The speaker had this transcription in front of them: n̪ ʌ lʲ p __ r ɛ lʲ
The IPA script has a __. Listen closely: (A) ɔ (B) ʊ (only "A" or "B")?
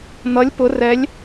B